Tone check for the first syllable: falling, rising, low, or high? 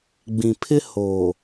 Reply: low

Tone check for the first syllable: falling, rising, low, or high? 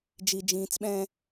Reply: low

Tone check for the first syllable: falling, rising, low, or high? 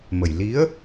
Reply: low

